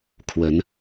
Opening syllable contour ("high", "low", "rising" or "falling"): rising